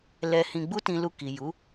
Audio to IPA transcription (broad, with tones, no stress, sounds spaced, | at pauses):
l ɛ˧ h ĩ˧ ɡ͡b u˦ t ĩ˧ l u˧ k i˨ j u˨˦